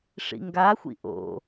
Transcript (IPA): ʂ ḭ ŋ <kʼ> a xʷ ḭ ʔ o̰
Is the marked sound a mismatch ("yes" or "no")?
yes